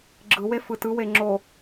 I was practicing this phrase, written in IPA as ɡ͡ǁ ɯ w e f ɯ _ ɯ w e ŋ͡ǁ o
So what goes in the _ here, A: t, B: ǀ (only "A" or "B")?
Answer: A